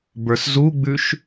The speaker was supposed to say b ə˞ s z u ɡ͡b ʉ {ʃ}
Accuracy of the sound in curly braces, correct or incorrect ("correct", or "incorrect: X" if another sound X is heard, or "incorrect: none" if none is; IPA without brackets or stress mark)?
correct